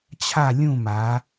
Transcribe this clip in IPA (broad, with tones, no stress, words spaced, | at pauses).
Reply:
t͡ɕʰa˥˧lʲũ˥˧ma˨˦